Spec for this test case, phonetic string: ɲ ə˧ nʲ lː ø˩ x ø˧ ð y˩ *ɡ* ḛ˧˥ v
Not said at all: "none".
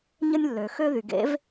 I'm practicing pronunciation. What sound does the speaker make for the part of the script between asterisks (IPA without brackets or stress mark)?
ɡ